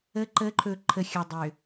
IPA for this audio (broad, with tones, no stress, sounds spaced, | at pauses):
ə˨˦ ǃ ə˨˦ ǃʰ ɵ˨ ǃʰ ə˨ xʲ ə˨ dˤ ʏ˨